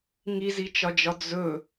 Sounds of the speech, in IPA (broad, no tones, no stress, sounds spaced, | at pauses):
ŋ i z i t͡ʃ ɒ d͡ʒ ɒ d͡z ɵ